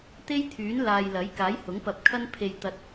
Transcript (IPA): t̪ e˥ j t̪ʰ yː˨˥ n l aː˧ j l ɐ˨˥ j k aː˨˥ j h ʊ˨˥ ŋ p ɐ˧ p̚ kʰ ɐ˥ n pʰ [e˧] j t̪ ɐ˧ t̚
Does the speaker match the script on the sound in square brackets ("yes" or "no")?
yes